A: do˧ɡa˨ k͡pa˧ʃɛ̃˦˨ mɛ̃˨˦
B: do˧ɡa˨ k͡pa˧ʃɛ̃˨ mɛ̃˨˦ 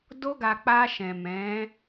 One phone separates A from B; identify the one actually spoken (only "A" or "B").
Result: B